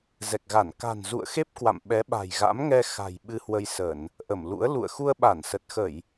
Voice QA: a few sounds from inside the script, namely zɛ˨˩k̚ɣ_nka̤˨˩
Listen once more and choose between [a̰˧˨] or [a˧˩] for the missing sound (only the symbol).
a˧˩